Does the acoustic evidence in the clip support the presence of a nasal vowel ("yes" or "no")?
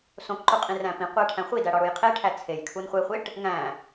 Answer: yes